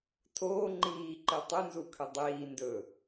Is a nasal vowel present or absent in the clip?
absent